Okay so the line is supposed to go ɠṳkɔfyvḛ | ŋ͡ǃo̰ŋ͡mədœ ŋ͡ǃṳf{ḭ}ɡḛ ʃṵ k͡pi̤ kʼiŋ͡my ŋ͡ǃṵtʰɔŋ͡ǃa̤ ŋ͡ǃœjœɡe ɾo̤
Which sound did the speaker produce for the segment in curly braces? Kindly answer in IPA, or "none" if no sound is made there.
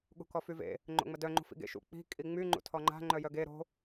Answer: ḭ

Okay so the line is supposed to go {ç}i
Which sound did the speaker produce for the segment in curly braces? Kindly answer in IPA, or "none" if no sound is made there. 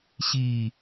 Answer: ɕ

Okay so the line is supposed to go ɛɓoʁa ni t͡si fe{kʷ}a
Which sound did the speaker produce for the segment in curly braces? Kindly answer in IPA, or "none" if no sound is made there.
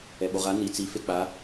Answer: k͡p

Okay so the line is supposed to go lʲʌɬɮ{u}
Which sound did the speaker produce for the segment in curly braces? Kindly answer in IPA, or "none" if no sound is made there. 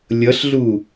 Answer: u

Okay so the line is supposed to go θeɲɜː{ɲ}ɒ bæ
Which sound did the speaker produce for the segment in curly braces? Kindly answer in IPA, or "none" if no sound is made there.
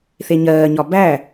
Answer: ɲ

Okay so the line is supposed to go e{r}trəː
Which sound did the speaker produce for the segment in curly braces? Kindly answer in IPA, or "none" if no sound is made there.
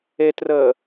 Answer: none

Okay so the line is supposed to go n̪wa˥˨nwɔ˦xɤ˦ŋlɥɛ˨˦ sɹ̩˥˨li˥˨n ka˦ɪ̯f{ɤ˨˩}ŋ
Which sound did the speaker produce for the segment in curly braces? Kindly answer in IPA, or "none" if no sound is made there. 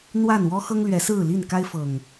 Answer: ɤ˨˩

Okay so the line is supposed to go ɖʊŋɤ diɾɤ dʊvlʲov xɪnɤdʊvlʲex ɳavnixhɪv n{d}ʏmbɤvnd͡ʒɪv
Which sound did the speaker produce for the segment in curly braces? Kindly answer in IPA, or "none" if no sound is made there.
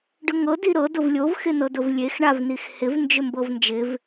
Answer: d͡ʒ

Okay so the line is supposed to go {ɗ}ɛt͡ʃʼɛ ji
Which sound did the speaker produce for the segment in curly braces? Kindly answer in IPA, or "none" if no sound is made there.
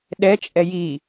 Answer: ɗ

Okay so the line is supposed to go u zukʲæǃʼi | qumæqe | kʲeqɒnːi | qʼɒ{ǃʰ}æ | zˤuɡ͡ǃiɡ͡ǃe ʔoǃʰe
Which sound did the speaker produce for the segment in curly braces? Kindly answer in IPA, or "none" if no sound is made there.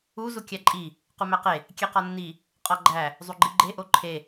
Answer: ɡ͡ǃ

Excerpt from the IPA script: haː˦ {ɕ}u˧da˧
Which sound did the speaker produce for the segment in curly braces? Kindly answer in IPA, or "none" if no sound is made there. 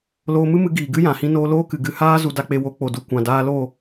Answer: z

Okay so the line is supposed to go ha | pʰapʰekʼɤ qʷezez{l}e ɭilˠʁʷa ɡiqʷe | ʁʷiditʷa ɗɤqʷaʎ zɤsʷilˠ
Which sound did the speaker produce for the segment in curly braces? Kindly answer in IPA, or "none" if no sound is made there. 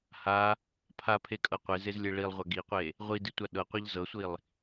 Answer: lʲ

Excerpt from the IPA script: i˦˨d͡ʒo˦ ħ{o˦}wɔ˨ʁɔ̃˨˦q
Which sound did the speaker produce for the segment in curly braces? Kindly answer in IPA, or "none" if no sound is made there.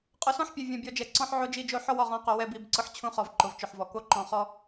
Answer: ɔ˦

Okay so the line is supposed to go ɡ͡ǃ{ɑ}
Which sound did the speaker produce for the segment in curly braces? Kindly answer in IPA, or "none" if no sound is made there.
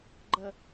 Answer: ə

